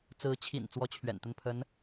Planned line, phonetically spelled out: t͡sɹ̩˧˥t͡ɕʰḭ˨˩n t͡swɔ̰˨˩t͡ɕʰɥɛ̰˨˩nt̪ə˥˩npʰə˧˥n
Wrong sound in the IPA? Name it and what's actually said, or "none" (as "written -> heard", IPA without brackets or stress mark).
ɔ̰˨˩ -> ɔ˥